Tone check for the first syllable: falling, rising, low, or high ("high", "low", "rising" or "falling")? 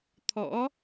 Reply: rising